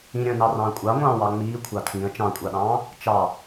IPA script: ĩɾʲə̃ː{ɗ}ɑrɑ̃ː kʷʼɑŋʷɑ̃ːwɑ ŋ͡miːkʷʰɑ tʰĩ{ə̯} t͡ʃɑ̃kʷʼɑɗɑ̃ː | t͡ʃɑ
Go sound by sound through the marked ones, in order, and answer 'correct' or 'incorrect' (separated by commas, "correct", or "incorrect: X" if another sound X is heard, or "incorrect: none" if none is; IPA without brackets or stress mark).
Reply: incorrect: n, correct